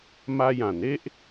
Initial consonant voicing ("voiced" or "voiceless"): voiced